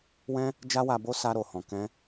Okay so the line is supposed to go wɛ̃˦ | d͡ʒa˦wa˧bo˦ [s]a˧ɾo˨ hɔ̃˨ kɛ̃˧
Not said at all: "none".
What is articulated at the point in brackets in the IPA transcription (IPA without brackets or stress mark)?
s